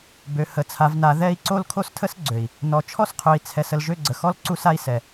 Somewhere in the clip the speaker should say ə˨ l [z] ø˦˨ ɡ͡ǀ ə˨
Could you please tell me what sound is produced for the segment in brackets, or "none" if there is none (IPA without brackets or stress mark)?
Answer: ʒ